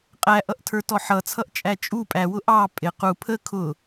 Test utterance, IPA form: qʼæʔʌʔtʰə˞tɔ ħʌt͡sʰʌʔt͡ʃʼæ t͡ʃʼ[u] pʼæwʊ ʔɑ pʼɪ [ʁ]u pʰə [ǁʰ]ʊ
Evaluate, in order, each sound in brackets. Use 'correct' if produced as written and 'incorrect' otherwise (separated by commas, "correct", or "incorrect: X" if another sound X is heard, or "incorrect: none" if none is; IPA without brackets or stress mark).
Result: correct, incorrect: q, incorrect: kʰ